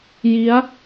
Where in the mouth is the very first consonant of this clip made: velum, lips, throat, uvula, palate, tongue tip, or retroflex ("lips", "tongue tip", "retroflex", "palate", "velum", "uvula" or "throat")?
palate